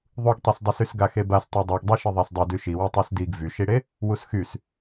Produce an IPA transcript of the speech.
ðˤ u ɡ tˤ y s dˤ y s y s ɡ a x e b a s tˤ i dˤ u ɡ dˤ e ʃ i ðˤ a s dˤ e d y ʃ i w e tˤ y s d i ɡ v y ʃ i ɽ e | w u s x y s

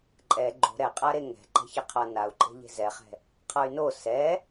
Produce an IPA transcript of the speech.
ǃʼ ɛ ɡ͡ǃ o̤ ɾ ɛ qʼ a ɾ e ŋ ɛ̤ ǃ ɛ̤ ç ɛ qʰ ʌ n a u̯ ǃʼ e̤ ʎ e̤ z ɛ χ ɛ̤ | qʰ ʌ y̯ n o s ɛ

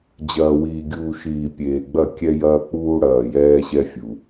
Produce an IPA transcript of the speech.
d͡ʑ ɐː˨ w iː˨ ɡʲ uː˨ ʃ iː˨ pʲ eː˨ ɡ͡b ɐ˦˨ kʲ ɛ˦ j ɐː˦ k͡p uː˦ ɽ ɐː˨ j ɛː˦ ɕ ɛ˦ fʲ u˨

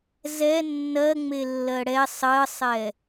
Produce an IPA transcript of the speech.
z ɛ nː ɜ ŋ͡m e lː ɜ ɽ ɛ sˤ ɜ sˤ ɛ

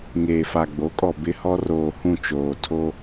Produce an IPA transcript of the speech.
ŋ eː˨ f a˨ ɡ͡b o˨˦ kʼ ɔ˨ b ɪ˦ h ɔ˦ r oː˨ h ũ˦˨ t͡ʃ oː˨ tʰ o˦

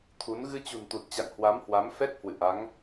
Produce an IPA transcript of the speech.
t̪ʰ u˨˦ n ɣ ɨ˧ t͡ɕ ṳ˨˩ n t̪ u˨˩ t̚ t͡ɕ a̰˧˨ ŋ h w a˨˦ m h w a˨˦ m f ɛ˦˥ k̚ h w ɨ̰˧˨ ʔ a˨˦ ŋ

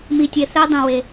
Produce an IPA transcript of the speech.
m i˧ tʲ e˧ θ e˥ dˤ ĩ˧ w e˧

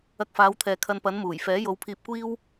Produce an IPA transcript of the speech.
ɐ˧ k̚ f aː˨˧ w t̪ʰ ɛː˨ kʰ ɐ˧ n p ɐ˨˥ n m uː˨˩ j f ɛː˨˥ j o˨˧ w pʰ iː˧ p̚ kʷ iː˥ w

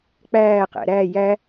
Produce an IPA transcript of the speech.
k͡p æː q æ̰ ɾ æ j æ

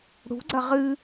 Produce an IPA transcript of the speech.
ɽ ṳ ɡ͡ǀ ɐ ʁ ɨ

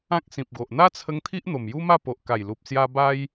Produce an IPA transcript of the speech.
ã˦ k̚ s ĩ˨ p̚ ɡ o˨ ʔ n̪ a˦ t͡sʰ ə˧ ŋ t̪ʰ i˦ ʔ n̪ o˨˩ m j u˦ m a˥˧ p o˨ ʔ k a˨˩ j l u˨ p̚ s j a˧ b a˦ j

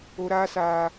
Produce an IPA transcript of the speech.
o˧ ɾ aː˦ s aː˧

